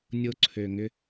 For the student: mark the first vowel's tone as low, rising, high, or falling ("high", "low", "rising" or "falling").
high